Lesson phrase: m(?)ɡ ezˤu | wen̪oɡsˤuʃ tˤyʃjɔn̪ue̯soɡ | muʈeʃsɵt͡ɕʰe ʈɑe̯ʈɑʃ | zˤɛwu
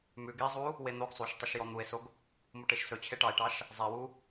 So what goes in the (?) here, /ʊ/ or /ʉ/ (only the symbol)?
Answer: ʉ